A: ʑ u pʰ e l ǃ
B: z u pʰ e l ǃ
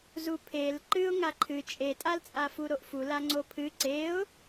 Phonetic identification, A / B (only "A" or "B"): B